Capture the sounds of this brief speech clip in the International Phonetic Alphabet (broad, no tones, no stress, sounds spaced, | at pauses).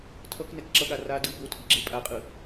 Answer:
tʰ ʌ k n ɛ k ǁ ʌ ɠ a r a d ɯ b o tʰ i ɡ͡ǁ e pʼ a qʼ ɯ